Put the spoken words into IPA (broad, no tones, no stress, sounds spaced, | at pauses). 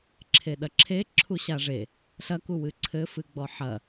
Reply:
ǁʰ e ɗ ɐ ǁʰ e ǁʰ u ɕ a ʐ e | ɬ ɐ k u w ɨ ǀʰ ɘ f ɨ ɡ͡b ɔ ħ ɐ